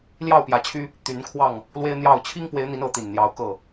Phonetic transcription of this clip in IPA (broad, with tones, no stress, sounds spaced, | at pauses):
l j ɑ˥˨ ʊ̯ p j ä˨˦ t͡ɕʰ y˦ | t̪ y˨˦ n kʰ w ɑ˥˨ ŋ | l w e˦ ɪ̯ n̪ j ɑ˥˨ ʊ̯ t͡ɕʰ i˦ ŋ p w e˨˦ ɪ̯ n̪ i˨˦ n ɤ˨˦ t̪ i˨˩ n n̪ j ɑ˨˦ ʊ̯ k ɤ˥˨